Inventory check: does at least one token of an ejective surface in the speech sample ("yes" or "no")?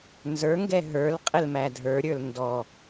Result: yes